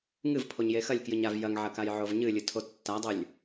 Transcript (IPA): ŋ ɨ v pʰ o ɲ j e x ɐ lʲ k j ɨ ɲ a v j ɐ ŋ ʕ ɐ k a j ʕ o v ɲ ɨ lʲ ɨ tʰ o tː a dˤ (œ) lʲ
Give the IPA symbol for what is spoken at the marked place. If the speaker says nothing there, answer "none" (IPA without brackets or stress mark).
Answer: ɵ